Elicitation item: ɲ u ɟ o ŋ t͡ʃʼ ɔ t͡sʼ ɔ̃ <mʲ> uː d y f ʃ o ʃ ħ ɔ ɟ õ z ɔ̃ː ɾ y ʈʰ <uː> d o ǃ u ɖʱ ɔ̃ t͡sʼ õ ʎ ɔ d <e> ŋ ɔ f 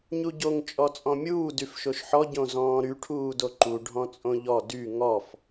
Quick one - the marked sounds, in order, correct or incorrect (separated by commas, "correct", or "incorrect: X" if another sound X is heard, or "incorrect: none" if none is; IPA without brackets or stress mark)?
correct, correct, incorrect: y